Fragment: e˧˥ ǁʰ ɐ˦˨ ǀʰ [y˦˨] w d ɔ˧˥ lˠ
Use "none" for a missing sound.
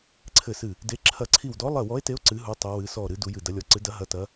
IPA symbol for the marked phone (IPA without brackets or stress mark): i˦˨